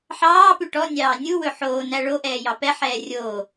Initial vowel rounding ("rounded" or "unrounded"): unrounded